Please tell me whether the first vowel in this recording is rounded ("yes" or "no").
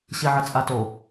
no